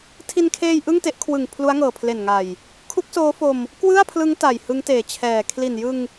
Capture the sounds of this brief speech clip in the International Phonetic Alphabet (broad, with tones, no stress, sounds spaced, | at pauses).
tʰ i˧ n kʰ eː˧ j ʔ ɯ˥˩ ŋ t e˦˥ ʔ kʰ w ɯ˨˩ ŋ pʰ l u˦˥ a̯ ŋ ɤː˨˩ pʰ l e˨˩ n ŋ a˨˩ j | kʰ u˦˥ k̚ s oː˦˥ f o˧ m | k w ɯ˥˩ a̯ pʰ l ɯ˦˥ ŋ t a˨˩ j h ɯ˦˥ ŋ t eː˨˩ t͡ɕʰ ɛː˨˩ kʰ l i˨˩ n j ɯ˧ ŋ